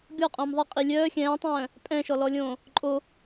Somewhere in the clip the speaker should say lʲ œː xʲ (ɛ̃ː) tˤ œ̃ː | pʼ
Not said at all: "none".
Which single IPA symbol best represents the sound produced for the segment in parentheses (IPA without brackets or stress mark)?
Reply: ɛ̃ː